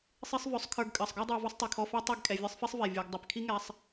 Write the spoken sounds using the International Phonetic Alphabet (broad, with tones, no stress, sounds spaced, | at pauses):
sˤ e˦ sˤ v œ˨˦ sˤ kʰ ə˞˧ ɡ kʼ ɜ˨ sˤ ɡ ɔ˦ dˤ ə˞˧ v ɛ˦ sˤ tˤ i˨ kʰ ɔ˧ f ɛ˦ tˤ e˦˨ ɡ kʼ ɛ˨ vʲ ə˞˦ sˤ f i˦ sˤ v ɛ˨ vʲ ə˞˨ ɡ dˤ ɛ˨ p kʰ i˦ ŋ ɛ˧ sˤ